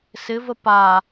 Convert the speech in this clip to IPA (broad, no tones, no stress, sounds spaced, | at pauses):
s ɪ v ə p a